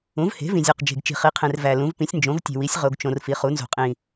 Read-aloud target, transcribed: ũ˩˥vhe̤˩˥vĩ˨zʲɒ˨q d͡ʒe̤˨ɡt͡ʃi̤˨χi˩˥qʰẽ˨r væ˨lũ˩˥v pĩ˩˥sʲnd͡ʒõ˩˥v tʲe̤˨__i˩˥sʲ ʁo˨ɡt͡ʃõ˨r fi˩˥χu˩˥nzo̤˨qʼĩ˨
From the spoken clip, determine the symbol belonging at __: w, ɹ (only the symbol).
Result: w